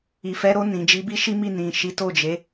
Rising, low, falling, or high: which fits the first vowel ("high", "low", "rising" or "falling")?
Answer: low